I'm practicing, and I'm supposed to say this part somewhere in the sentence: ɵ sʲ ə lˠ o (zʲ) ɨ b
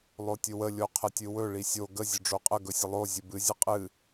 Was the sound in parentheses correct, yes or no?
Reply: yes